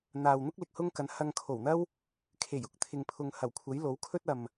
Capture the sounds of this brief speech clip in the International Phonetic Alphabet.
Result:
n̪ aː˨ w n̪ ʊ˥ k̚ l ɪ˨ k̚ h ʊ˥ ŋ k ɐ˨˥ n h ɐ˧ ŋ kʰ o˨˩ w n̪ ɐ˥ w | kʰ e˨˩ j ʊ˨ k̚ t̪ʰ ɪ˨ ŋ pʰ ʊ˨ ŋ h ɐ˨˩ w kʷʰ ɐ˨˥ j l o˨˥ w kʰ ɵ˥ t̚ ɐ˨ m

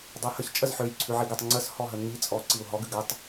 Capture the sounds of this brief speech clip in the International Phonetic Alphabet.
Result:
dˤ ʉ h ə ç t͡ʃʼ ə z ħ ø j ǀʰ ʉ ʕ i ɡ ʉ tˤ ŋ͡ǀ ə s h ɔ ɦ ə ŋ i t͡sʼ ɔ ǀ i u̯ ɦ ɔ ɡ ʉ ɡ ə tˤ

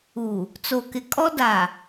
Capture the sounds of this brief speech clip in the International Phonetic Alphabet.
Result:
uː˨ | t͡s o˨ k ɪ˨ kʼ ɔ˦ d a˨

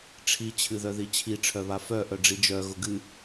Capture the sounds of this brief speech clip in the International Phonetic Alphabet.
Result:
ʈ͡ʂʰ i t͡ɕʰ ɨ ð œ ð i t͡ɕʰ i ʈ͡ʂʰ œ β a f œ ʔ œ ɖ͡ʐ i d͡ʒ œ ɣ ʊ ɡ ɨ

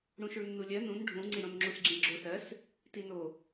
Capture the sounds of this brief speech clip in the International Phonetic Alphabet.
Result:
ɽ ũ ʃ u ɭ nː u lʲ ɜ n ũ n ɖʱ ũ ŋ͡ǀ i ɽ õ n ŋ͡ǁ u s ɡ͡ǁ ĩ ɭ ɡ͡ǁ o s ɜ s | t i n o

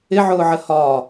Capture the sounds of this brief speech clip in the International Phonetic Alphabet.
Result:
ɪ ʕ ʊː ʕ ə h ɒː

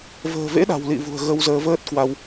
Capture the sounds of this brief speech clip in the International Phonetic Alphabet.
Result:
v ə̤ː˨˩ v ḛ˧˥ ɗ a̤˨˩ w l ḭ˧˨ v ṳ˨˩ ə̯ ɣ ə˧ w z əː˧ v əː˦˥ t̚ k w a˧ w

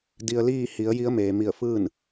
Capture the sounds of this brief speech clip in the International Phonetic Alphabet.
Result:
d i˧ ə̯ l iː˥˨ h i˩˧ ə̯ j i˧˥ ə̯ m eː˩ m i˧˩ ə̯ f ɯː˥˨ n

